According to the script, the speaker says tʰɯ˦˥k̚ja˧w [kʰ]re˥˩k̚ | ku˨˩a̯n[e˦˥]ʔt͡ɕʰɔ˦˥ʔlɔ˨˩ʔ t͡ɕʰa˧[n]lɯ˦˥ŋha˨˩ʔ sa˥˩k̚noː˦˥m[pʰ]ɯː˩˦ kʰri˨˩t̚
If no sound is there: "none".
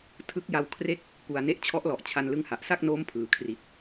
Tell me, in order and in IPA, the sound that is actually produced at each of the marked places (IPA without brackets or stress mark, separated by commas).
kʰ, e˦˥, n, pʰ